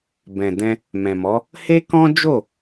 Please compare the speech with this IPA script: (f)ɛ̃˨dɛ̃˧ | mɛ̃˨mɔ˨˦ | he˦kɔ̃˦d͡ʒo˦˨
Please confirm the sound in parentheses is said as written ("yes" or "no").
no